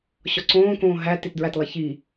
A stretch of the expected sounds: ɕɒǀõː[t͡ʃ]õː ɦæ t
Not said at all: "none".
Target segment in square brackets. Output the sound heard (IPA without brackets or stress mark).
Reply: k